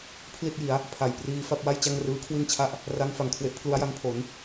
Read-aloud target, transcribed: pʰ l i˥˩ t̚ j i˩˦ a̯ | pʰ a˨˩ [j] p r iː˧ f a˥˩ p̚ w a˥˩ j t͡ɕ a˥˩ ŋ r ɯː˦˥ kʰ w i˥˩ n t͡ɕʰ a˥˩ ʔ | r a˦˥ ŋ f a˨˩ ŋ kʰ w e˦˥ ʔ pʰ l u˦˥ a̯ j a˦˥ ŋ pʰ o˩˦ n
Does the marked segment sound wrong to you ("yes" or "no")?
no